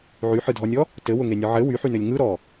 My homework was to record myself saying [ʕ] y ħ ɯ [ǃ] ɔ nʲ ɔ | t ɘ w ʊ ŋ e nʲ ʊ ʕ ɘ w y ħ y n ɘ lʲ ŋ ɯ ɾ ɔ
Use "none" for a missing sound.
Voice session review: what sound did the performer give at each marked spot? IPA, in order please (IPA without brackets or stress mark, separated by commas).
ʕ, dʱ